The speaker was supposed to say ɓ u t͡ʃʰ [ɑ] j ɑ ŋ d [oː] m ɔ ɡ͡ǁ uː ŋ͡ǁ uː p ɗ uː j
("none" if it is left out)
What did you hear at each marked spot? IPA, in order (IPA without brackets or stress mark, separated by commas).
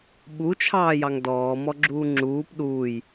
ɑː, ɔː